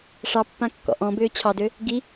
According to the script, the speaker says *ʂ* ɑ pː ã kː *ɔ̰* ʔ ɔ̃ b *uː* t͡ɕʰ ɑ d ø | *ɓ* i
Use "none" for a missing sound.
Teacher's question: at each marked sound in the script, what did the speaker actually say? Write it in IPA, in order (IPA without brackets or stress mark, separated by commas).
ʂ, ɔ̰, ʏː, ɡ